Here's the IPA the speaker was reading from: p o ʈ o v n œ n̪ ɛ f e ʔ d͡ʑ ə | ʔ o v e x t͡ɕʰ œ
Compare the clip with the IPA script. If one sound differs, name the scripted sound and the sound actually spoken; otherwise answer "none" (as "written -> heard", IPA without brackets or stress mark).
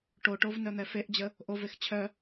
p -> ʈ